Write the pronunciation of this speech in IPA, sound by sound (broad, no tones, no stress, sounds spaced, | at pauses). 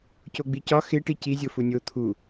c o ɡ͡b i c ɒ x e ʈ i c i zʲ o f u nʲ o t̪ʰ u